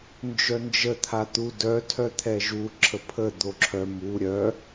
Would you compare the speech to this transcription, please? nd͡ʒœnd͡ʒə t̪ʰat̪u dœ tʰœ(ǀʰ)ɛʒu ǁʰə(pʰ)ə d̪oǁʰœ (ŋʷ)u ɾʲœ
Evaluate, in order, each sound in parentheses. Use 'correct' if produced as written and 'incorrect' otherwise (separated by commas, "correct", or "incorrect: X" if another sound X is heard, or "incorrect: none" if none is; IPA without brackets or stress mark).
incorrect: t̪ʰ, correct, incorrect: m